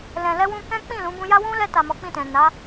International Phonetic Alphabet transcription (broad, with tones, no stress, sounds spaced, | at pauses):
l ɛ̃˨ l ɛ˧ w ũ˧ k ɛ̃˦ k͡p ĩ˦˨ l ũ˨˦ b ũ˧ j a˦ w ũ˦ l ɛ˧ t a˨ m ɔ˨˦ k͡p ĩ˦˨ t ɛ̃˨ n a˨˦